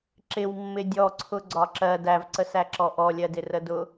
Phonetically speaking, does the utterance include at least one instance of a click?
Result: yes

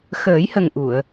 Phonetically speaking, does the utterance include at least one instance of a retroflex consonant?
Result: no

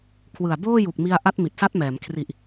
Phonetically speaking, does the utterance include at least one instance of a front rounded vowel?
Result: no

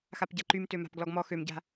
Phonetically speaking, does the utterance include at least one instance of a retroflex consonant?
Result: no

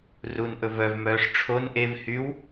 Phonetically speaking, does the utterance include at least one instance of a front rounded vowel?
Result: yes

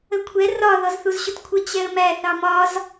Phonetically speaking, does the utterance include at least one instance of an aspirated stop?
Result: yes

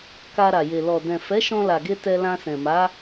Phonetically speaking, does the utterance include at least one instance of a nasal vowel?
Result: yes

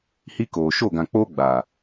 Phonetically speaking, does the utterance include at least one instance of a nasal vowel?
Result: yes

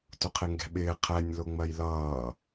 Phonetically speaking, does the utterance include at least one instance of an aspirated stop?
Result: yes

